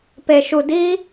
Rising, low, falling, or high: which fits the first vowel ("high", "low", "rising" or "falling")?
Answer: low